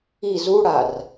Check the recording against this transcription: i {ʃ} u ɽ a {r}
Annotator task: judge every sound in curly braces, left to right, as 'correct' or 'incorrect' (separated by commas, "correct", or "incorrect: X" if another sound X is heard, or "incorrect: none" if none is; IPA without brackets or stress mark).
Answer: incorrect: z, correct